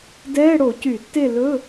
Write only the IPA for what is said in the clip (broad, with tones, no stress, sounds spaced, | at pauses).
d ɛː˧˥˧ ɽ o˧˩˧ c y˧˩˧ tː e˦˨ l ɵ˧˥˧